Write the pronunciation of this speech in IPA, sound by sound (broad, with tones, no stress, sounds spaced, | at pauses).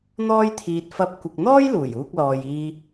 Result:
n̪ ɔː˥ j t̪ʰ iː˧ t̚ f ɐ˧ p̚ kʷ ɪ˨ k̚ n̪ ɔː˥ j l uː˨˩ j uː˧ k̚ l ɔː˨ j iː˧